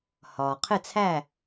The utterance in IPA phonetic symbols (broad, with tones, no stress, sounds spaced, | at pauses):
h ɒː˩ qʰ ɪ˥˨ t͡sʰ æ˥˨